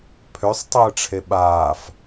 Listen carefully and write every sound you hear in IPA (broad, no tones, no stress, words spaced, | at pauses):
pʰøsˤtˤəːʈ͡ʂʰe ɓaːf